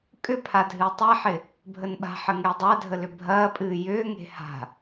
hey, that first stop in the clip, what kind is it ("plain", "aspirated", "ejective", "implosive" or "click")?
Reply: ejective